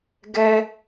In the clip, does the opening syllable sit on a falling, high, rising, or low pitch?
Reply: high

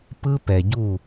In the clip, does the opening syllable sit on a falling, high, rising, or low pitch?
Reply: high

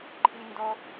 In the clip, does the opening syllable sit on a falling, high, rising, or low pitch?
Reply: high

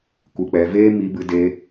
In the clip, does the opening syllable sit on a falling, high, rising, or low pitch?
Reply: low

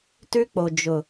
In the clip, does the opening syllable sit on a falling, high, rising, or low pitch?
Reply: high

